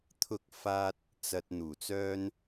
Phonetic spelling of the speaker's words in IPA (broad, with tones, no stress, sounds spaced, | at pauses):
t̪ʰ ʊ˧ k̚ f aː˧ t̚ | t͡s ɐ˨ t̚ n̪ uː˨˩ t͡s œː˥ n